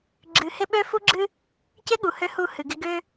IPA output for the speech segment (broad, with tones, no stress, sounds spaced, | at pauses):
ɡ͡ǁ ɨ˨ h ɪ˦ ɓ ø˦ f u˦ ɡ͡ǁ ɨ˦ | c ɪ˦ ɠ u˨ h ø˦ h u˦˨ h ɨ˨ ɡ ɪ˦ ɡ ø˦